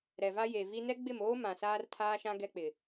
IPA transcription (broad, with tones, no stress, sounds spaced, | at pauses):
ɾ ɛ˨ v a˦ j e˨ v i˦ n ɛ˦ ɡ͡b ɪ˦˨ m oː˦ m ã˨ s aː˦ r tʰ aː˦ ʃ ã˦ ɡ ɛ˦ k͡p ɪ˨